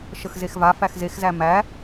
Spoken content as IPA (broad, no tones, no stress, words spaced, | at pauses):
ʃəxzexva fæxzexzæ mæ